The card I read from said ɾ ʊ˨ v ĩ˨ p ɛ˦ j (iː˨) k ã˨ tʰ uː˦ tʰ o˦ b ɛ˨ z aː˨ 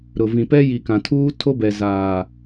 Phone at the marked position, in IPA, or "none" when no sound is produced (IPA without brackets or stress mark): i˨